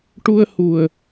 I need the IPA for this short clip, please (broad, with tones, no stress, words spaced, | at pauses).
ʈu˧ə̯hu˨˩ə̯